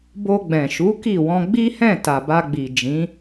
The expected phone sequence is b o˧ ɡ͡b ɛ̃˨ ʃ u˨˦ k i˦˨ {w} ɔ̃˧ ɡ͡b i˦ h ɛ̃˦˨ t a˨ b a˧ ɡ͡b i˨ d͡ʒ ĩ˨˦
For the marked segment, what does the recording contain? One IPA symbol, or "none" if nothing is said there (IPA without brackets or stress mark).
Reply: w